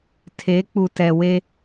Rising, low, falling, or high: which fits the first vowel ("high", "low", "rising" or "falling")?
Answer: rising